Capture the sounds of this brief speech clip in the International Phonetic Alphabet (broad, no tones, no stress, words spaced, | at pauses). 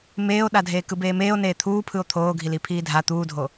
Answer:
meːo̯ɗadʱeːkɯb eːmeːo̯neː t̪ʰuːpʰɯo̯ t̪ʰoːɡʱili pʰiːdʱa t̪uːdʱo